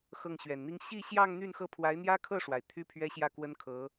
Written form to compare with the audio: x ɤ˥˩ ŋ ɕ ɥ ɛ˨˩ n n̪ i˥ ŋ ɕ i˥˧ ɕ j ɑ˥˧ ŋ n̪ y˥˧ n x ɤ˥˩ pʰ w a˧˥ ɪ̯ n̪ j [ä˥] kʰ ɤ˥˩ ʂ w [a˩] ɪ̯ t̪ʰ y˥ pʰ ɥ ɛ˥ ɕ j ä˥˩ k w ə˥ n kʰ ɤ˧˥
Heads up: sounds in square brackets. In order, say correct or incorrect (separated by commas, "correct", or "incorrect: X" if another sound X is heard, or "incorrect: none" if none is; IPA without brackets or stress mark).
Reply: correct, correct